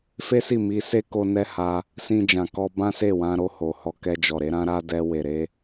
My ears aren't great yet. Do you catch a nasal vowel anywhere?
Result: yes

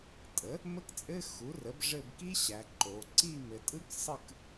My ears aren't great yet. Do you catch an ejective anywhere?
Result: yes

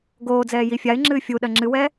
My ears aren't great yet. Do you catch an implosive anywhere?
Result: yes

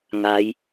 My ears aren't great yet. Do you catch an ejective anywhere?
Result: no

